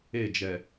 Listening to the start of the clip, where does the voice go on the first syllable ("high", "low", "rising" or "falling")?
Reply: falling